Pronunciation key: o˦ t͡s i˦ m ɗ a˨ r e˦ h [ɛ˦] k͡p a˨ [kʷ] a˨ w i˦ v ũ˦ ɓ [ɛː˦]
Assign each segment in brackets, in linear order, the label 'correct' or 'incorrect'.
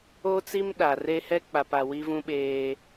correct, incorrect, incorrect

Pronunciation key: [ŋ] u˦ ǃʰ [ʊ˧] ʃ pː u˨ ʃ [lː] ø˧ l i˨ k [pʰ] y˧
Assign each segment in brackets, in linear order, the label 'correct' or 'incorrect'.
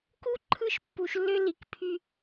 incorrect, incorrect, correct, correct

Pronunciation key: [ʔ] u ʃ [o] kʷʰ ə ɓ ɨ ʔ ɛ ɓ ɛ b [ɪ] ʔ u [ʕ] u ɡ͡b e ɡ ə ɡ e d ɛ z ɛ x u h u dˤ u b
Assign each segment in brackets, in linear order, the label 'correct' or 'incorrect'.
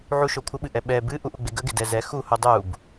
incorrect, correct, incorrect, incorrect

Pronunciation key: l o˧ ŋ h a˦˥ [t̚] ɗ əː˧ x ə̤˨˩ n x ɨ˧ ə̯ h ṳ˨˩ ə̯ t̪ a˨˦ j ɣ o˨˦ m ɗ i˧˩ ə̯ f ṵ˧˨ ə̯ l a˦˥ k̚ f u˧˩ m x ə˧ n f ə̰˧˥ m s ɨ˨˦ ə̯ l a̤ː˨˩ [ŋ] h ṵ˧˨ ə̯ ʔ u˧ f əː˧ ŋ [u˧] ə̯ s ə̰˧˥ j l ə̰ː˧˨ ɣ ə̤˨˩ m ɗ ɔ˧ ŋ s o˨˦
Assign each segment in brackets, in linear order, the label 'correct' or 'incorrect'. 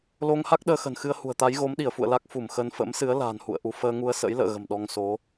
incorrect, incorrect, correct

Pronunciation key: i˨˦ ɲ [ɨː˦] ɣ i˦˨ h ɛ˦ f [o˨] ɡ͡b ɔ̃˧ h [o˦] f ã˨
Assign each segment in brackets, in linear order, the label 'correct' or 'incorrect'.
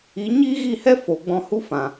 incorrect, correct, incorrect

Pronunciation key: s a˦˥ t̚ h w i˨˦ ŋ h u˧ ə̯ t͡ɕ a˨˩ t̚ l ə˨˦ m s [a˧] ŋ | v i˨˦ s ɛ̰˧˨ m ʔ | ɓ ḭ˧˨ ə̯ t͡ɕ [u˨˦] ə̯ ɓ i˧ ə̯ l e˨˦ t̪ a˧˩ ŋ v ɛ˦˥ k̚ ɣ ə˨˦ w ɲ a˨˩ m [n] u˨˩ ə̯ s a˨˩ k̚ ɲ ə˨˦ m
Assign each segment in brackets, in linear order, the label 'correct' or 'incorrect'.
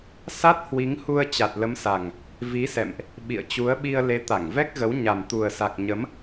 incorrect, correct, incorrect

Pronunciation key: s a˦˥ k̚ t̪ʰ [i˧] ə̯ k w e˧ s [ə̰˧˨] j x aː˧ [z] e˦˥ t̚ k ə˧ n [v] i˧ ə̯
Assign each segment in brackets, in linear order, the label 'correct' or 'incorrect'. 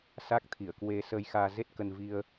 incorrect, incorrect, correct, correct

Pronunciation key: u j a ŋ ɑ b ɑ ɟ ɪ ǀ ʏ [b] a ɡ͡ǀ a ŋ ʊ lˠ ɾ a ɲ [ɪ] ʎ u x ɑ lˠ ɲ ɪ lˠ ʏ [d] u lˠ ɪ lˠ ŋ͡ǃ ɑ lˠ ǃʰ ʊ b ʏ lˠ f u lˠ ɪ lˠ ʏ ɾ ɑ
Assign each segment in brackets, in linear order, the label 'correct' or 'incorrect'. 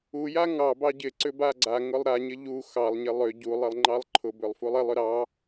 correct, correct, incorrect

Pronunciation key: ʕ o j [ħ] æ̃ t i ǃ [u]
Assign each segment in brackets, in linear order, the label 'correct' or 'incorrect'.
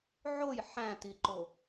correct, incorrect

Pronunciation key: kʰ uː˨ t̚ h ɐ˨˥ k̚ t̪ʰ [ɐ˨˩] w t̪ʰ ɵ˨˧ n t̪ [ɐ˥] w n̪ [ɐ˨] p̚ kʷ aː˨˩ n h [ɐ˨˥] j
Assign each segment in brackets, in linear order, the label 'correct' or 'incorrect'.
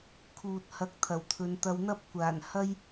correct, incorrect, incorrect, incorrect

